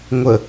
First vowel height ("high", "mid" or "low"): mid